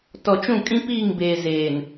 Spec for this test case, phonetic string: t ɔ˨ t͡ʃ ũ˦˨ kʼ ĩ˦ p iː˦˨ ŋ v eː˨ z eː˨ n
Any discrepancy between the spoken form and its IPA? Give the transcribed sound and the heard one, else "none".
v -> b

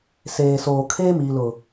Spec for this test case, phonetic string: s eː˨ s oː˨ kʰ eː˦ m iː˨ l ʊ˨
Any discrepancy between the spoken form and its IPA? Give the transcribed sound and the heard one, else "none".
none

